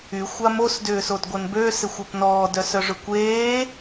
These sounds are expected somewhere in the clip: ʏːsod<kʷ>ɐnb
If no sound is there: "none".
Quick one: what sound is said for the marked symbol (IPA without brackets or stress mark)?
ɡʷ